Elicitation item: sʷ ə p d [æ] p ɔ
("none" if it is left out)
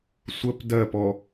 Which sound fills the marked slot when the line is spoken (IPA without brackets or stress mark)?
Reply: ɜ